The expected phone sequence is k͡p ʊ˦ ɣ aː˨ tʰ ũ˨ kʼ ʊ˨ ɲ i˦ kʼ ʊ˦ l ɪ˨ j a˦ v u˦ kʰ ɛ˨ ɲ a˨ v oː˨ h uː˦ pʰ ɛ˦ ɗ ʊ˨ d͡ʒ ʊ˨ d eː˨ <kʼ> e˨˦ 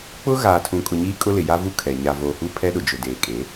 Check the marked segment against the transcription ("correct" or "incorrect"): correct